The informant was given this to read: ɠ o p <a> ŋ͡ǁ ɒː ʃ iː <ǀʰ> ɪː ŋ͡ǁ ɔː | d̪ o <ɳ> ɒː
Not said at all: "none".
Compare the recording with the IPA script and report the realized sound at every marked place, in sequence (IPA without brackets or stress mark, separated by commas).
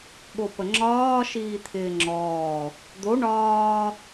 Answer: ə, t̪ʰ, ɳ